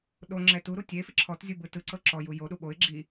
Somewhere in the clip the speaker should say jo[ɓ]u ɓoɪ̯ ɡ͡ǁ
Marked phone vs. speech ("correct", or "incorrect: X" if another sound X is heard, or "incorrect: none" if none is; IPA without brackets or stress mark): incorrect: ɗ